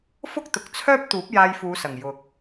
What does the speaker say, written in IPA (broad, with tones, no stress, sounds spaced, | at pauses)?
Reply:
f ʊ˥ k̚ t̪ ʊ˨ k̚ t͡sʰ œː˥ p̚ t̪ uː˨˥ p̚ j aː˧ j f uː˨˧ s ɐ˨˩ ŋ j ʊ˨ k̚